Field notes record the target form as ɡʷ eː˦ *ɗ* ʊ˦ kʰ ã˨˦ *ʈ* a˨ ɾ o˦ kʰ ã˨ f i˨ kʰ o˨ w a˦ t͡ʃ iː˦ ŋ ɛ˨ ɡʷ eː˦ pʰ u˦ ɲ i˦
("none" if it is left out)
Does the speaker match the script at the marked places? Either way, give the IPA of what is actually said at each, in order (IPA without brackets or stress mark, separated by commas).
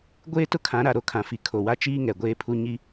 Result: t, ɾ